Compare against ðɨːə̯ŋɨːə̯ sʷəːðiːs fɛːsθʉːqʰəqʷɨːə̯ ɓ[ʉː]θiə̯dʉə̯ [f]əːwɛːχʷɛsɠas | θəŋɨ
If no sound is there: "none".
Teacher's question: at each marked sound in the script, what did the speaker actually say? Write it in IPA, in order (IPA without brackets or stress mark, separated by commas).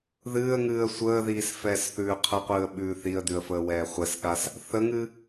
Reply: ʉː, f